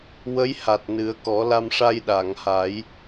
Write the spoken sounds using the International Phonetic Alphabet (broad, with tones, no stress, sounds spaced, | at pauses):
w ə˧˥ j h a˨˩ t̚ n ɨ˨˩˦ ə̯ k ɔ˨˩˦ l a˧ m ʂ a˧ j ɗ a˨˩˨ ŋ h a˨˩˦ j